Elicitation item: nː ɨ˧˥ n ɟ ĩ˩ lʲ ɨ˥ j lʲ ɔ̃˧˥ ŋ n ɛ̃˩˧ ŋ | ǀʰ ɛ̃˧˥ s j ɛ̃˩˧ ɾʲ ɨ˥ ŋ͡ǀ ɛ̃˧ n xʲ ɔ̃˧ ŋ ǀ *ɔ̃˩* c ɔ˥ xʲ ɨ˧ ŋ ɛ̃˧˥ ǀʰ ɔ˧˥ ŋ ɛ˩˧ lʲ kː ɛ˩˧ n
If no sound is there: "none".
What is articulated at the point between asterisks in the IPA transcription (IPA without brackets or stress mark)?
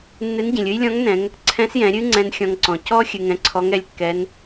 ɔ̃˩